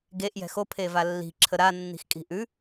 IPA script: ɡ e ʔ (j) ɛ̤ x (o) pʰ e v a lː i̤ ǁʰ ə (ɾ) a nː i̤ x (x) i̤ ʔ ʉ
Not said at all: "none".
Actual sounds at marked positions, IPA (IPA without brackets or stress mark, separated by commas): j, o, ɾ, kʼ